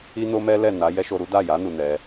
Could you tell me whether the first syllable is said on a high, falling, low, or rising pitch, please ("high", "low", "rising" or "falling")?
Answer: high